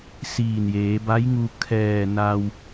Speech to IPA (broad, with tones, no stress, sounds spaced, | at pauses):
s iː˧˩ n j eː˩˧ b a˧˥ j ŋ u˧ kʰ ɛː˧˩ n a˧ w